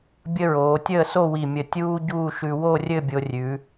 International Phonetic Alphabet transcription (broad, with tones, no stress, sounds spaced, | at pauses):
bʲ ə˥ ɹ oː˩˧ tʲ əː˥˧ s o˥˧ w i˧˩ mʲ ə˧˩ tʲ uː˥ ɟ uː˥˧ ʃ ʉ˧ w o˥˧ rʲ ɘ˥˧ bʲ o˧ rʲ ʉ˩˧